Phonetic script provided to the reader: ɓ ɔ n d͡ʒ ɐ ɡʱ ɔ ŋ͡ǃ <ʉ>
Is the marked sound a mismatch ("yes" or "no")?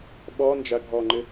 yes